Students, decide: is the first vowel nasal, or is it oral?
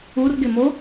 oral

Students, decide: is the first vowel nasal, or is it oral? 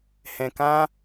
nasal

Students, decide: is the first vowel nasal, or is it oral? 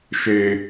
oral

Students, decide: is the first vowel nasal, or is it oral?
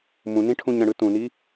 nasal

